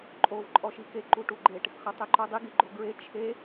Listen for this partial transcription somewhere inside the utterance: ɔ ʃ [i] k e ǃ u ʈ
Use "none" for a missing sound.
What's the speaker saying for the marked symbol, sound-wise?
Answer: i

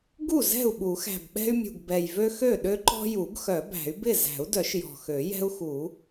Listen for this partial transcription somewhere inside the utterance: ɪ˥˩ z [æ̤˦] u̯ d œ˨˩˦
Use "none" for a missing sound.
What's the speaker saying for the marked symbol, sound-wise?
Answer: æ̤˨˩˦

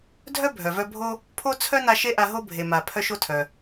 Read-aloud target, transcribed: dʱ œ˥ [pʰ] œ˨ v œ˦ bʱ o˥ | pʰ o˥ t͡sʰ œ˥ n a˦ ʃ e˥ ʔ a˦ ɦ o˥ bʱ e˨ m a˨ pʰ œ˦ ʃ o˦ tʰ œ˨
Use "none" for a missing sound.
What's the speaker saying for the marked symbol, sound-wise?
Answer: bʱ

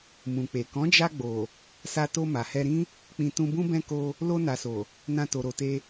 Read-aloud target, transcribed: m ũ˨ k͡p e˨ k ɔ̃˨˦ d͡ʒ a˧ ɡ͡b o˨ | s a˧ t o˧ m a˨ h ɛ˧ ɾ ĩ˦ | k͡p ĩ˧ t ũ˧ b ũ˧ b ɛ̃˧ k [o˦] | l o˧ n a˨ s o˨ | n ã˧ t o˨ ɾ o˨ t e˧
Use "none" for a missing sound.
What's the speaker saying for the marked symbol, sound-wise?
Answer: o˧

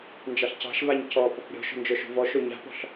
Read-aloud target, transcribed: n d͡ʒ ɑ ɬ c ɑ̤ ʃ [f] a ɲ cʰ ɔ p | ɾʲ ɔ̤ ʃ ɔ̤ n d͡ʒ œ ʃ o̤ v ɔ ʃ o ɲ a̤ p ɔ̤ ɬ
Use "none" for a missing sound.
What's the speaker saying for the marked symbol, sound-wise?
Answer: v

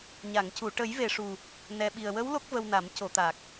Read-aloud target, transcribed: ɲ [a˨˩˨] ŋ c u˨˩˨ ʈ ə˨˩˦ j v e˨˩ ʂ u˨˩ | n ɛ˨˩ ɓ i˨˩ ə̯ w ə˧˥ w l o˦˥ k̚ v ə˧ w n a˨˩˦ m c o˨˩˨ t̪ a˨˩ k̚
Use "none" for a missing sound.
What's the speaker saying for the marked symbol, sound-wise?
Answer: a˨˩˨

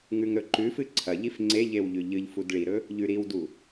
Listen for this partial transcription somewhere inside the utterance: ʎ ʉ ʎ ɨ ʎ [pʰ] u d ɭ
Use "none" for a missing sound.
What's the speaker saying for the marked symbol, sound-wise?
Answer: f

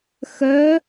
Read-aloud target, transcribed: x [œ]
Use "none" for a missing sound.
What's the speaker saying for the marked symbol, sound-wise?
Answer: œ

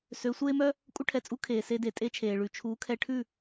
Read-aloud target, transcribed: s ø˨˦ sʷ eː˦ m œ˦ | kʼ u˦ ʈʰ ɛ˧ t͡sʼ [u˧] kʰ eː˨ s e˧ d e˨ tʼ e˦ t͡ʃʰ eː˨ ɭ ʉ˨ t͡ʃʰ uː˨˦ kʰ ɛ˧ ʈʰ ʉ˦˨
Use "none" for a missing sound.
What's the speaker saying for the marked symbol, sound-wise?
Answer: u˦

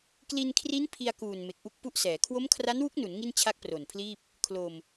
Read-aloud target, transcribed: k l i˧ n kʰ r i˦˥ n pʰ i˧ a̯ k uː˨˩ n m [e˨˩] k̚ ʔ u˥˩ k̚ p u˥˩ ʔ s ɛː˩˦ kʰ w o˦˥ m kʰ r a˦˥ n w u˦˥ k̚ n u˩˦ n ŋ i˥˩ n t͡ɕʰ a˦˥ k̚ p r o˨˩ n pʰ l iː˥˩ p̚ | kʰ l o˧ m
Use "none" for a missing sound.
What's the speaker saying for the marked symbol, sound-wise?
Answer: e˨˩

